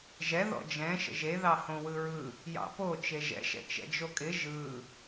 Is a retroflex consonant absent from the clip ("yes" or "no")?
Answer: yes